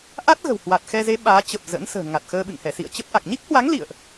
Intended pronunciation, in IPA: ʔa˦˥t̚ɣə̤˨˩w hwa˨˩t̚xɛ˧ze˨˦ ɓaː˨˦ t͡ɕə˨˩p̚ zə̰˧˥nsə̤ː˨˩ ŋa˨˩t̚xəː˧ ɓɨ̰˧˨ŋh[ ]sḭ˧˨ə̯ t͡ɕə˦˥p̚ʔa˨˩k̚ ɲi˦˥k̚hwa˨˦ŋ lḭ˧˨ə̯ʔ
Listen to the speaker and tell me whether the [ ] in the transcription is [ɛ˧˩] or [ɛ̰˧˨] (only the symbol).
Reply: ɛ˧˩